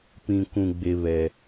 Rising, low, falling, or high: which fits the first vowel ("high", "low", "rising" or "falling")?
low